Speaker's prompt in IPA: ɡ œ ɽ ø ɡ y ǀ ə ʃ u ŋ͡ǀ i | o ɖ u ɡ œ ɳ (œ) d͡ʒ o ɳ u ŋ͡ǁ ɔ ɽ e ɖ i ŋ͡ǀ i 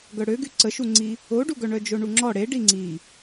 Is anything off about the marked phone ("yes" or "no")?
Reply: no